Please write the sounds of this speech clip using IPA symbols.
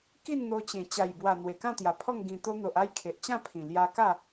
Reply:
ki˥˧nn̪o˧t͡ɕẽ˨˩ t͡ɕa˨˩jbwa˨˩ n̪we˨˩kã˥˧t̪ja˨˩pʰɔ˥˧ŋ ɡĩ˨˩t̪o˧n̪o˨ʔ a˥˧jkʰe˨ʔt͡ɕã˥˧pʰĩ˨˩ lja˧ka˥˧

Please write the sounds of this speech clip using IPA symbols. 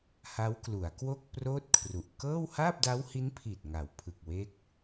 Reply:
ha˦˥wklu˩˦a̯ kwo˥˩k̚proː˥˩t̚kʰru˨˩ʔ kɤː˥˩w haː˥˩p̚da˦˥whi˦˥npʰiː˨˩t̚ ŋa˩˦wpʰɯ˨˩k̚we˦˥k̚

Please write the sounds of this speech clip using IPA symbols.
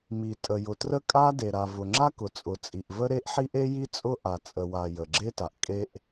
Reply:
mi˩tʼə˩jʊ˩trə˥ kʼa˥de˩ ɾa˩vʊ˩ŋ͡ǁa˥ kʊ˩t͡sʼʊ˩t͡sʼi˩ʔvə˥ ɾe˥ʔħi˥ʔ e˥ji˥ t͡sʼʊ˥ ʔa˩t͡sʼə˩wa˩ jə˩ɡ͡ǁe˥ta˩ʔ kʼe˥ʔ

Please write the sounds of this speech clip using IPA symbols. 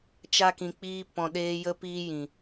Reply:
t͡ʃa˧kĩ˨k͡piː˧ pɔ̃˧ɗeː˦ jə˧piː˧jĩ˨

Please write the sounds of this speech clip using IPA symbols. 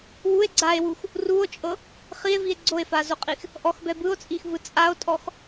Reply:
wue̯ ɡ͡ǀae̯wux | ruo̯t͡ʃʼɤ | χie̯vie̯ ɡ͡ǀoe̯fazoqʼix | ʔɔxbɛ bɯo̯t͡sʼixvɯ t͡sʼao̯tʼɔx

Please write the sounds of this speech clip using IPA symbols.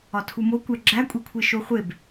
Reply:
ɒtʰumo kʷæɡ͡ǁækʷʼikʷʰe ʃoχʷeb

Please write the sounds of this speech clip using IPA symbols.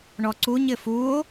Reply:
ɳɔǀuɲ ɪfuo̯

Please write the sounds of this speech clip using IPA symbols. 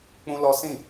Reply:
k͡pũ˦lɔ˦ sĩ˦˨

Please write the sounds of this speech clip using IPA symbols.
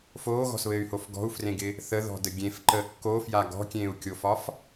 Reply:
foːɣɔ̤sβɘːy̯hof ɡɔ̤u̯frẽɡɪ | θəðɔ̤də ɡʲẽfǃəː kːofja ɡɔ̤kʲẽːu̯kʲofɒf

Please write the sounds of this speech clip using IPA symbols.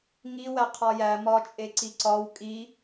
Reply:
ŋiwæ qʰɒjæ mɒt͡ʃʼeǀi ǀɒw kʼi

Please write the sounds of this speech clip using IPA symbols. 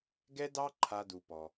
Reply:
ɡɛ˦dɑ˦ ǃʰa˦du˧pɔ˧

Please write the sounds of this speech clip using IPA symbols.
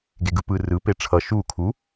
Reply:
ɡeɡɯpɯ rɯ peʈ͡ʂʰʌ ʃu kʰu

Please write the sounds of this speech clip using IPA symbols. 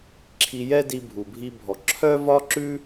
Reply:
ǁʰi˧jɛ˦di˧ bʱu˨bʱi˧bʱɔ˨ ǁʰœ˦vɒ˦ ǁʉ˦

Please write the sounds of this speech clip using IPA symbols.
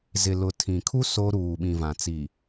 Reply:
zɪ˨lʊ˨ tʰĩ˨ kʰu˦ so˦ ɾuː˨ɓĩ˨vã˨ t͡si˨

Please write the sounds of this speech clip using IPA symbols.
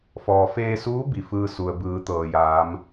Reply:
fɔː˩feː˧suː˧˥ bi˩fɯː˧su˩ə̯ bɯː˩˧t̪ɤː˩jaː˩˧m

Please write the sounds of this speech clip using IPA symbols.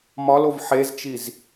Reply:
mɒlov ħezt͡ʃiz

